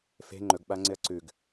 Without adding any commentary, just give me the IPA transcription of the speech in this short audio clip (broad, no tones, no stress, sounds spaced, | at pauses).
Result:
f e̤ ŋ͡ǃ ɵ ɡ ɓ a ŋ͡ǀ ɪ ɐ̯ ǀ ʉ ɡ